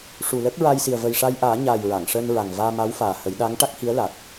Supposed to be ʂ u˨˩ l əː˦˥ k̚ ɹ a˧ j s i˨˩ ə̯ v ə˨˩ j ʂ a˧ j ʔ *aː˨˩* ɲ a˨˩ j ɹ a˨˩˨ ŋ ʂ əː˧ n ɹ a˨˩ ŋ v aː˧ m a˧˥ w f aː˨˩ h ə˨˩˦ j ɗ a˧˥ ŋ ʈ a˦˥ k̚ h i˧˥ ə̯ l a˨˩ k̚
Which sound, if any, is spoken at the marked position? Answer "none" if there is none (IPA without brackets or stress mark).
aː˨˩˦